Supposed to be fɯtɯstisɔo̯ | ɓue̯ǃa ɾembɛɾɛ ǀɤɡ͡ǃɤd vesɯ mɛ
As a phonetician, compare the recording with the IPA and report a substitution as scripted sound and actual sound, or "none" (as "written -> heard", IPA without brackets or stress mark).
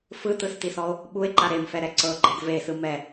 b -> f